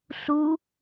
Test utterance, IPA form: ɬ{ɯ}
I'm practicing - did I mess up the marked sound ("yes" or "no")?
yes